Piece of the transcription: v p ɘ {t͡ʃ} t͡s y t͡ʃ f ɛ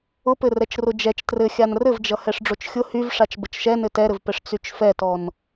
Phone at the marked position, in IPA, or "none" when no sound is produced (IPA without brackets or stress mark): ʂ